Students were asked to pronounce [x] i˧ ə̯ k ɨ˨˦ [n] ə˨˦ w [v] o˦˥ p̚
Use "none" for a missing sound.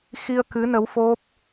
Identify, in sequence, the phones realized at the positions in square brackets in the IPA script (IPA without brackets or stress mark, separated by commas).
x, n, f